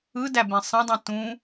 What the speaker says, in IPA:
ɯ d æ b ẽ sˤ ẽ dˤ ĩ t ũ

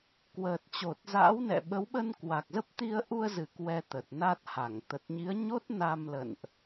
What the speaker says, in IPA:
k w əː˨˩ t̚ t͡ɕ o˨˩ t̚ z a̰ː˧˥ w n ɛ̰˧˨ ɓ ə˨˦ w ɓ ə˧ n k w a˨˩ k̚ z ə˦˥ p̚ t̪ i˧ ə̯ ʔ u˧ ə̯ z ɨ˨˩ k w ɛ˧ t̪ ə˨˩ t̚ n a˦˥ t̚ h a˧˩ ŋ t̪ ə˨˩ t̚ ɲ i˨˦ ə̯ ɲ o˦˥ t̚ n a˧ m l ə̰˧˨ n ʔ

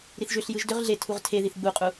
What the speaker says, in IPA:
ɾ i θ ʒ ʏ ɬ j ɯ ʒ d ʏ ʁ ɮ e tʰ u ʁ tʰ e ð i θ ɡ͡b u qʼ u

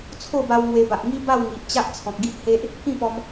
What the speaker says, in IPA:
t͡sʰ o˥˧ b a˧ w ŋ w e˧ b a˨ ʔ ŋ i˦ b a˥˧ w ŋ i˨ ʔ t͡ɕ a˦ ʔ t͡sʰ ɔ̃˨ k̚ ɡ i˦ ʔ h e˦ ʔ | k ĩ˥˧ p ɔ˧ m

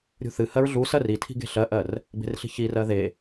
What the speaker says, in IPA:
ɾʲ ṳ θ ɨ h ɜ ɹ ɮ u s ɜ r i tʰ i̤ ɡ e̤ ɬ ɜ ʔ ɜ r | b e̤ r ɬ i̤ ç i r ɜ ð e

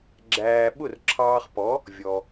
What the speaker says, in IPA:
ɡ͡ǁ æː˧ ɓ ʊ˥˩ r ǁʰ ɑː˧ χ p ɔ˩˥ | vʲ ɔ˩

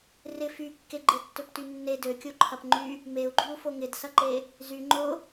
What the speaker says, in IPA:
r ɪ f y kː e ɡ͡ǃ e tː ø p t y nː e d ø kʲ o ǃʰ ɐ p ŋ͡ǃ y | m e u̯ ɡ͡ǃ y u̯ f o ŋ ɪ d s ɐ ǃ e | z y ŋ͡ǃ ʊ

